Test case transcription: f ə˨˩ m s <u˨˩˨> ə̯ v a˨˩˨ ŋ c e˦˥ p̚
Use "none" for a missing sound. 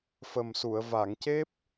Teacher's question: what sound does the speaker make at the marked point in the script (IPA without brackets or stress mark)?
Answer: u˨˩˨